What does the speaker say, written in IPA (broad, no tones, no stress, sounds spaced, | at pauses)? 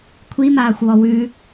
kʷʰ i m aː xʷ w ɔ w ʉ